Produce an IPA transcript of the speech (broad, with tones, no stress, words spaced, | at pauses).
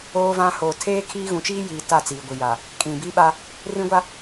oː˦vã˦ hoː˨tʰeː˦kʰiː˦ ɣũ˨t͡ʃiː˦jiː˨ ta˦˨t͡siː˨ɡʷi˨ja˨ | kʼĩ˨bi˦ɓa˦ | rĩ˦ɡʷa˦